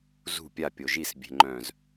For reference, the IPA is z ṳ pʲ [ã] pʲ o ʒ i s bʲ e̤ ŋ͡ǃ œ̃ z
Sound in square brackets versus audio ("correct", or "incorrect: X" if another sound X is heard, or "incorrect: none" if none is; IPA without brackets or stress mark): incorrect: a